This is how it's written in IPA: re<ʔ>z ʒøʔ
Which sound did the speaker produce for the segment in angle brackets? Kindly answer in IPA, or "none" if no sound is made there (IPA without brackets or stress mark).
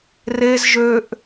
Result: none